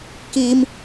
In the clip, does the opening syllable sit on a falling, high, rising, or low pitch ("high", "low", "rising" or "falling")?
high